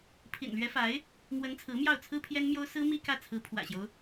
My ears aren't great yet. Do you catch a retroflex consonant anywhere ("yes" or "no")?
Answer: no